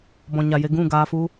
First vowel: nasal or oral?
nasal